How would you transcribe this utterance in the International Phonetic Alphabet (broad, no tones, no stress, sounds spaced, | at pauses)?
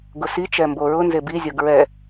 ɡ ʊ s i t͡ʃ ɛ m b o ɹ ʊ n z e b i zʲ o ɡ ɹ ɛ